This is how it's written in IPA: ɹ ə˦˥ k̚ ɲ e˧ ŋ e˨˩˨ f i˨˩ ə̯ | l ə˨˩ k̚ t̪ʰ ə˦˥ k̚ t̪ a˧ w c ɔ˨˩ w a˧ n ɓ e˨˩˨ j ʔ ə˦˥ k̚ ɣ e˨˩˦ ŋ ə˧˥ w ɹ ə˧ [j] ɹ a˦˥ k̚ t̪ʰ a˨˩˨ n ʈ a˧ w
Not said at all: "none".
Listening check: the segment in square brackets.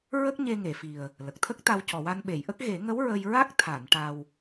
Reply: j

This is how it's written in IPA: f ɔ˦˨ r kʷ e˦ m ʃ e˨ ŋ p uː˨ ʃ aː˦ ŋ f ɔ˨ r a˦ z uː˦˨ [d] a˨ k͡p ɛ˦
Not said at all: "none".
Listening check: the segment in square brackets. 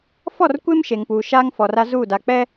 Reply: d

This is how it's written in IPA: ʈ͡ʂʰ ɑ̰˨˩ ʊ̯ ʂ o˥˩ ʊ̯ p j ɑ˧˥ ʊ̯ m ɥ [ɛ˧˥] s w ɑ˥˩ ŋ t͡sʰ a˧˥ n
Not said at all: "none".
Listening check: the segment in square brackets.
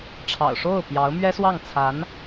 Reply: ɛ˥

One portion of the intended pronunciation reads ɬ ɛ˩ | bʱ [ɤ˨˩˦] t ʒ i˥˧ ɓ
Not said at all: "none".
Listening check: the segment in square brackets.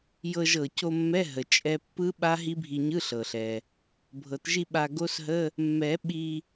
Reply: ɤ˨˩˦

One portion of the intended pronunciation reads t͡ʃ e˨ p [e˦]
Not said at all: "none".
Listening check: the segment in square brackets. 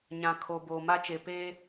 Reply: e˦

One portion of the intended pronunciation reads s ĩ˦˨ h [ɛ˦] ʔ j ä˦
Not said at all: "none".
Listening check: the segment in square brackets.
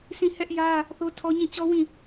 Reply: ɛ˦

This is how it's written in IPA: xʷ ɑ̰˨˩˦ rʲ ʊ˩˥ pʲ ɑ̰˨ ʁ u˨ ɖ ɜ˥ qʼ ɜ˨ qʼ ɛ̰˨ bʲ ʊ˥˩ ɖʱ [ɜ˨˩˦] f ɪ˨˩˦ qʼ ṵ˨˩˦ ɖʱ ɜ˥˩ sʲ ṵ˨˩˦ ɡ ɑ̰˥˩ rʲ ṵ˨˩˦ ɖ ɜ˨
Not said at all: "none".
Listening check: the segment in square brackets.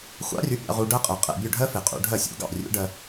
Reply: ɜ˥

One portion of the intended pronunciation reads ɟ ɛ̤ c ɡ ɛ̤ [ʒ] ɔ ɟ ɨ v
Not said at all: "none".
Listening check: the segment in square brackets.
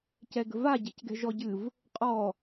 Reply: ʒ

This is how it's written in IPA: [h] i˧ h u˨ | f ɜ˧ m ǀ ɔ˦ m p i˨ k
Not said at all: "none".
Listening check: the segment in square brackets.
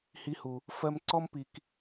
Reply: h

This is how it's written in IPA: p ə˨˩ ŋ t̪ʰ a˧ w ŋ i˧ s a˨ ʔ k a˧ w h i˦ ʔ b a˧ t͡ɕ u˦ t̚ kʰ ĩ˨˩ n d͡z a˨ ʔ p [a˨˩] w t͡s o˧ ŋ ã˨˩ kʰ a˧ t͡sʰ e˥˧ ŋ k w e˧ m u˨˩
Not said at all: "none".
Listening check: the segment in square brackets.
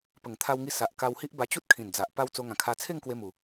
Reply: a˧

